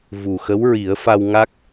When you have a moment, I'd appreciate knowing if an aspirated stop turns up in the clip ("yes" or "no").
no